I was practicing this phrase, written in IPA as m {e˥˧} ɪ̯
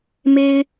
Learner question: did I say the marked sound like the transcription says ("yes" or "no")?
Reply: no